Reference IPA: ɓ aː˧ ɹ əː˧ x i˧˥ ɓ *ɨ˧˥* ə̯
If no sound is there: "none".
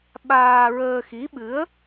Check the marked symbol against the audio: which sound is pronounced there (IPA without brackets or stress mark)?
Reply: ɨ˧˥